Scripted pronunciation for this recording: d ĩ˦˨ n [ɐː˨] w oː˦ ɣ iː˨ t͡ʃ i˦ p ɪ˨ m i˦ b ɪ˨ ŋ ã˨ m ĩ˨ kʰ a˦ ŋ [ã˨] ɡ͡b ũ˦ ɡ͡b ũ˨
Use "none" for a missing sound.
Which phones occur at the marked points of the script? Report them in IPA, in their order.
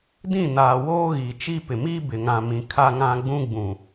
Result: aː˨, ã˦

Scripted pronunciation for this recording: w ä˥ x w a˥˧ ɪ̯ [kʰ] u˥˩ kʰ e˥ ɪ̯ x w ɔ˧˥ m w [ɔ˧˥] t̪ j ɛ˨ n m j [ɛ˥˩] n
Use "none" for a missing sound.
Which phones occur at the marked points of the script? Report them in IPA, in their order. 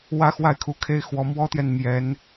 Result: kʰ, ɔ˥, ɛ˧˥

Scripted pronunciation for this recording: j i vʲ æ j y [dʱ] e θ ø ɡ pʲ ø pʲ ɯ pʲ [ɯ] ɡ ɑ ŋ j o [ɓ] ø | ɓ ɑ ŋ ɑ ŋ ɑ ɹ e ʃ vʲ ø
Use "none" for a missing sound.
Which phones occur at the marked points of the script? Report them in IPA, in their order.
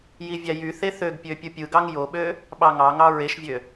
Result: θ, ɯ, ɓ

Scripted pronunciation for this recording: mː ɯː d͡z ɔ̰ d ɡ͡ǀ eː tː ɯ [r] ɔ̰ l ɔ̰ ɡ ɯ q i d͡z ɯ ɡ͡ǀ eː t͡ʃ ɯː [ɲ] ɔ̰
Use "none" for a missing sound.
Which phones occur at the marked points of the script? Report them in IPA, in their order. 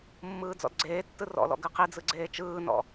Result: r, n

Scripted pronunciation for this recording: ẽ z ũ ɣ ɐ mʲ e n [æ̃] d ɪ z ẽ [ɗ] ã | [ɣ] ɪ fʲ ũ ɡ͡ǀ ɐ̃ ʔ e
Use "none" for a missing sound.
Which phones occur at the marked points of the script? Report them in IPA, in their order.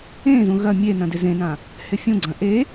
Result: ɐ̃, n, h

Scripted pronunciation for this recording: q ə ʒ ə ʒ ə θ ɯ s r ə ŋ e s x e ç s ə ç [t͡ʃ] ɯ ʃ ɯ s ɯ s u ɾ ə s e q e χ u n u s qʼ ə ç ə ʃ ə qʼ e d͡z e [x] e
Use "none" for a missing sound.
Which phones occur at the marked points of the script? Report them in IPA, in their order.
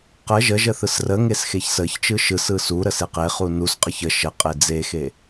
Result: t͡ʃ, x

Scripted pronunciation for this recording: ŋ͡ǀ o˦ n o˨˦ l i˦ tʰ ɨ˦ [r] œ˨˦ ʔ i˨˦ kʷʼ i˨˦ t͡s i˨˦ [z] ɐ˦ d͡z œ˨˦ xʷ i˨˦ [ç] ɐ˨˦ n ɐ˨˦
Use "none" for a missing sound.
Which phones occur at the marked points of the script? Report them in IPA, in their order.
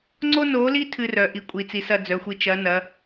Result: r, s, t͡ʃ

